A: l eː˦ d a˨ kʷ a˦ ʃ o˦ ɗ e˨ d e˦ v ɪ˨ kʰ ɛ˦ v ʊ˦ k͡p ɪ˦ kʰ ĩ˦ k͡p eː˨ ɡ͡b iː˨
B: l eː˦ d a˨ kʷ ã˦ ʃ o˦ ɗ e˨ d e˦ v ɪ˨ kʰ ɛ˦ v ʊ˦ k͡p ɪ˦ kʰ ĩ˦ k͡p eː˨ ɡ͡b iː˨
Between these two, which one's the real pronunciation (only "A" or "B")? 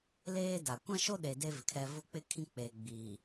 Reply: B